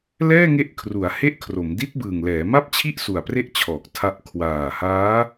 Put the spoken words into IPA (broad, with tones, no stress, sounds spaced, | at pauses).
l ɛː˥˩ ŋ e˦˥ ʔ kʰ r u˩˦ a̯ h e˥˩ ʔ kʰ r o˩˦ m d i˦˥ t̚ b ɯː˨˩ ŋ l ɛː˩˦ m a˥˩ p̚ t͡ɕʰ i˥˩ ʔ s u˨˩ a̯ p r e˥˩ ʔ t͡ɕʰ ɔː˨˩ k̚ tʰ a˦˥ ʔ kʰ w aː˨˩ h aː˦˥